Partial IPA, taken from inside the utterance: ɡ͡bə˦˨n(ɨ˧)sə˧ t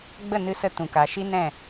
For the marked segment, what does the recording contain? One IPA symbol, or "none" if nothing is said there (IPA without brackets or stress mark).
ɨ˧